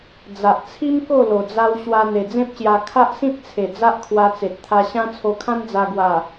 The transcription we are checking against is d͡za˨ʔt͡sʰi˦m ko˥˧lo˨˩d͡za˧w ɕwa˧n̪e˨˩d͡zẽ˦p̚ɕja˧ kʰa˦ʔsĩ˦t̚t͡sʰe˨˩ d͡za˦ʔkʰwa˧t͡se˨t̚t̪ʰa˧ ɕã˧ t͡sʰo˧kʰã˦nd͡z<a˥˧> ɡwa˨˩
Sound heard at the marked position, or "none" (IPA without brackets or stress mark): a˧